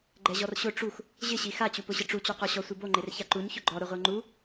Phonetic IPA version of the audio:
ɡ͡ǃɛʑɔrɕʊ ʈ͡ʂux | ʑɪɕi xat͡ɕupʊɕɪ ʈ͡ʂut͡ɕoqɔɕɔ sʷiboŋ͡ǃer çaǃuɲ çʊɡ͡ǃɔ ɾʊʁʷeŋ͡ǃu

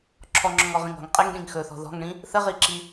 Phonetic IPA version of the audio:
ǁʰɔŋ͡ǁɔ̃ŋɔʁĩŋ ɔ̤ŋ qʼeŋɗĩŋ xɵθɔ̤ ðɔ̤ŋɳĩ | θəʁiǁi

